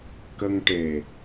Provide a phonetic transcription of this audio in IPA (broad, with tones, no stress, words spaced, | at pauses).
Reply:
kə˧ŋʈe˨˩